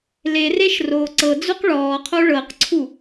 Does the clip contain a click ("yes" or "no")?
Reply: yes